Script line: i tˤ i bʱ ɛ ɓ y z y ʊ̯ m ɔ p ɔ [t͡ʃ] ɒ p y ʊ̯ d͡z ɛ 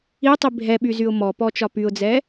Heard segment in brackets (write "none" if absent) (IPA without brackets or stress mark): t͡ʃ